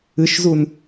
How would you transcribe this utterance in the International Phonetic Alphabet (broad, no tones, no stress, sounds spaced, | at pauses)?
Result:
ɨ ʃ z u n